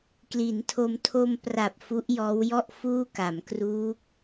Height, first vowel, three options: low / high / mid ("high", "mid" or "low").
high